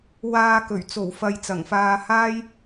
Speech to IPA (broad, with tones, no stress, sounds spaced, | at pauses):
w aː˧ k ɵ˨˩ ɥ t͡s o˨˩ w f ɐ˨ j t͡s ɐ˨˩ ŋ f aː˧ h aː˥ j